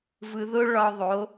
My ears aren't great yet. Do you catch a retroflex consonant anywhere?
yes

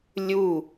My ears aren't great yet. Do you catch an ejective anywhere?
no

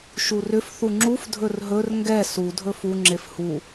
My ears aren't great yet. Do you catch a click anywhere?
yes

